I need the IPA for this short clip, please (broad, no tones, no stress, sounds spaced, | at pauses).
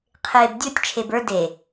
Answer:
qʰ eː b dʲ o tʲ t͡ʃʰ e b ə˞ d e